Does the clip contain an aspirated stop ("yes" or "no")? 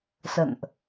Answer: no